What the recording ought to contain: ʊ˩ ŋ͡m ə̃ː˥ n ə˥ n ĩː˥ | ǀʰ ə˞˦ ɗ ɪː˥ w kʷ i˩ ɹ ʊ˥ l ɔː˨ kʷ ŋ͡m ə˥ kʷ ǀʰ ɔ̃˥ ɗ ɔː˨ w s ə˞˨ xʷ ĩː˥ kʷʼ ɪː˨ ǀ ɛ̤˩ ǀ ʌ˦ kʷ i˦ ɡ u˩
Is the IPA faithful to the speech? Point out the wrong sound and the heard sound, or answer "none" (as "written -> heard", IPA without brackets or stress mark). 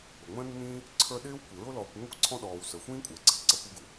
none